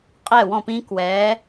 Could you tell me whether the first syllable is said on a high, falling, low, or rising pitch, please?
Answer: falling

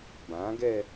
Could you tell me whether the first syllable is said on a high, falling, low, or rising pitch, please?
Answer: rising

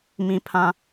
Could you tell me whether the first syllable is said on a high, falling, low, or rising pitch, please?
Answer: high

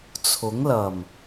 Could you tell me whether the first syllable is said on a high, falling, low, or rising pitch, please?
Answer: rising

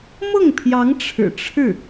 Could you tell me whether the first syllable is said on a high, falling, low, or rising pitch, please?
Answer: falling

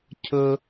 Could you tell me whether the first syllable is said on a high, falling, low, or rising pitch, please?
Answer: high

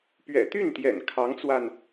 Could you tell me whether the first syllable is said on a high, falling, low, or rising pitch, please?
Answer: low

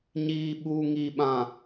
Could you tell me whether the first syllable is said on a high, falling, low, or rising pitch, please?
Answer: low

